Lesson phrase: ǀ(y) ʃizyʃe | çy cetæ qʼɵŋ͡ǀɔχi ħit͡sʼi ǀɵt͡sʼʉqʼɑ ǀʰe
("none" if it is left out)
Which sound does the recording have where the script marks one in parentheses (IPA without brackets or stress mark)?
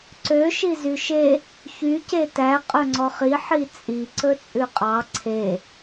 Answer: ø